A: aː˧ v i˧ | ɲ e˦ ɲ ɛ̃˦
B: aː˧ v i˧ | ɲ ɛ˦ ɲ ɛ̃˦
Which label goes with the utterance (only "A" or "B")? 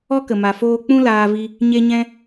A